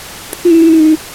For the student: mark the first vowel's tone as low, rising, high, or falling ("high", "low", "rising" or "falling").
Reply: high